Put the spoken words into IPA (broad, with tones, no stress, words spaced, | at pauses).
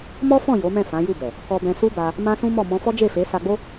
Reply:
mɔ˦fɔ̃˦˨ jo˨˦mɛ̃˦˨ fã˨˦ju˦˨bɛ˨ | kɔ˧bɛ̃˧su˦ba˧ | mã˦sũ˦mɔ˦˨ mɔ̃˧fɔ˦ d͡ʒe˦˨fe˨˦sa˧ɡ͡bo˦